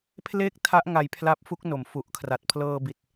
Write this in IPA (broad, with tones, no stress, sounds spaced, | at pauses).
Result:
pʰ l e˥˩ k̚ tʰ a˦˥ ʔ ŋ a˩˦ j pʰ l a˦˥ p̚ f u˦˥ k̚ n o˩˦ m f u˨˩ ʔ kʰ r a˨˩ t̚ pʰ l ɤː˧ b i˨˩ t̚